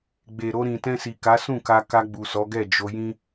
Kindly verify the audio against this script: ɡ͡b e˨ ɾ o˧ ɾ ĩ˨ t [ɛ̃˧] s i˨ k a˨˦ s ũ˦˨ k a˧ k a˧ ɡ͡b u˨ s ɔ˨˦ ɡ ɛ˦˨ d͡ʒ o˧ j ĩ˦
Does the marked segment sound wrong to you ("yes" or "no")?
no